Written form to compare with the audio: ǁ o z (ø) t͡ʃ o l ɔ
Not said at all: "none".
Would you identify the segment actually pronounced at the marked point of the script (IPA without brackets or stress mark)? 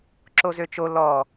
ø